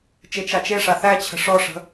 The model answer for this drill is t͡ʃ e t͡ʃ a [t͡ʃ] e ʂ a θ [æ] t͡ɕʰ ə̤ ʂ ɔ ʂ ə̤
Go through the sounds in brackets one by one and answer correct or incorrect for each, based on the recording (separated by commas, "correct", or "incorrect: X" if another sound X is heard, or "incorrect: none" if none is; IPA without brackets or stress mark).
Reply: correct, correct